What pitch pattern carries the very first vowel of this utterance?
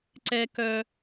high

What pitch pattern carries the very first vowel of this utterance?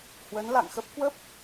rising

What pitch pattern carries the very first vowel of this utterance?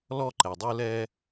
high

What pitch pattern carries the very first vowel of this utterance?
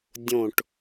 falling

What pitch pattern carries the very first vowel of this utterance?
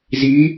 rising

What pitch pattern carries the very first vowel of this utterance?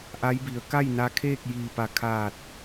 rising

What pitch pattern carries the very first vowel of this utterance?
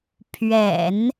low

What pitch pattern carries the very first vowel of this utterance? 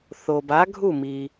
low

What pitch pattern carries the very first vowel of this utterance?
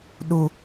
high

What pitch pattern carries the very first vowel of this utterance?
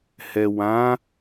low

